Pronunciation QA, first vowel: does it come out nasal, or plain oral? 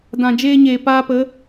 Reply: nasal